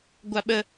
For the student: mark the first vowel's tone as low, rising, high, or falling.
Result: high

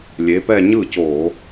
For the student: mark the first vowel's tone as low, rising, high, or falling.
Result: rising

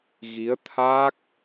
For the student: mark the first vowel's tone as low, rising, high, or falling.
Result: rising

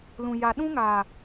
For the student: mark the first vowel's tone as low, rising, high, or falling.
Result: low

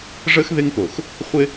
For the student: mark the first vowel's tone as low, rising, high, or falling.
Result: high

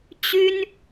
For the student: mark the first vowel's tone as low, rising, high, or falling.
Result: high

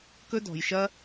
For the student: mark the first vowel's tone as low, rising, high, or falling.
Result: high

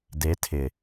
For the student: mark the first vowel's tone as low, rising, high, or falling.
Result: rising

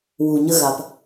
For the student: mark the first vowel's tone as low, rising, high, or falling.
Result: low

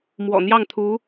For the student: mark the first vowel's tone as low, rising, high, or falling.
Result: low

